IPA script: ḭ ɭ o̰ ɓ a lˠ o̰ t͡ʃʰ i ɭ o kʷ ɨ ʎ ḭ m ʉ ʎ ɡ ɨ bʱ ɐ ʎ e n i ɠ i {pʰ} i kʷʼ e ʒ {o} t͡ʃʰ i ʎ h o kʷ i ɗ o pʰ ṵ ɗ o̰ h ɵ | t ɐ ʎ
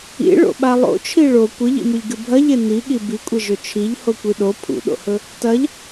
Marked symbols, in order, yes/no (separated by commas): no, no